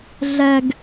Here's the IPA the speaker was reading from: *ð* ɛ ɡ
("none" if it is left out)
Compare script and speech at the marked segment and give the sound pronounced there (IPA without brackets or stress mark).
ɮ